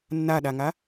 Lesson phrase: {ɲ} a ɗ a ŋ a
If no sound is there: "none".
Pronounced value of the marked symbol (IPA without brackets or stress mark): nː